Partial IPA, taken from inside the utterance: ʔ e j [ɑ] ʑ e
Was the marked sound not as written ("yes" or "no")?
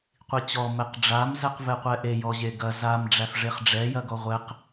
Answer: yes